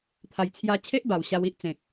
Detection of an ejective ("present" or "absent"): absent